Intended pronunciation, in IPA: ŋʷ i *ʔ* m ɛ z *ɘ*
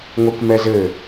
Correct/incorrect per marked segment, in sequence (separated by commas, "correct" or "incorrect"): incorrect, correct